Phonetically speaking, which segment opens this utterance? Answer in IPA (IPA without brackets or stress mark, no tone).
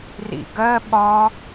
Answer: r